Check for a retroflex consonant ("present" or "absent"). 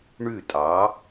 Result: present